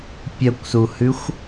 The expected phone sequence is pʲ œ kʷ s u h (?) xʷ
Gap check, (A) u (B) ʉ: B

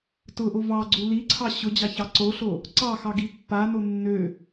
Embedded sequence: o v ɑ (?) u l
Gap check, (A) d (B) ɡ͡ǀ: B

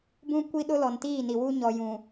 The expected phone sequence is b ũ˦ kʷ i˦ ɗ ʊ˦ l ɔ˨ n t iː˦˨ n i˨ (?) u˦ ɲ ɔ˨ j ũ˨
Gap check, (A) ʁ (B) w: B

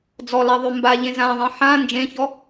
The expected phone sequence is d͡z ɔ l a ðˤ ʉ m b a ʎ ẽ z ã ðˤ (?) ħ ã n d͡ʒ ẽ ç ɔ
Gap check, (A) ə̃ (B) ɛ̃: B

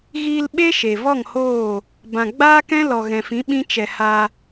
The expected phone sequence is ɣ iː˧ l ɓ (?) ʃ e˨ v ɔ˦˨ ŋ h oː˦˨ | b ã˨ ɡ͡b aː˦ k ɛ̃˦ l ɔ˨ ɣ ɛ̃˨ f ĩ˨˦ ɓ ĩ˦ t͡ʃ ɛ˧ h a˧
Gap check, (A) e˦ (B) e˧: A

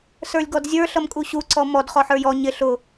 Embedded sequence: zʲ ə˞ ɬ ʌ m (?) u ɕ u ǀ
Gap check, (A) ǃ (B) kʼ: B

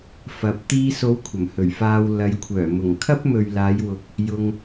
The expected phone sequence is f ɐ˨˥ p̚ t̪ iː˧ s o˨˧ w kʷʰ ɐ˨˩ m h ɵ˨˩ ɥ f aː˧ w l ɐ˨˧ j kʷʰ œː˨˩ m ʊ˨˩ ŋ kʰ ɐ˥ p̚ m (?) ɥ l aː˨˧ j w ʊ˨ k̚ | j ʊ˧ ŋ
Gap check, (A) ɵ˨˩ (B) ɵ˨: B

